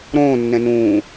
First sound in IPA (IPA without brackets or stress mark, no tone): ɾ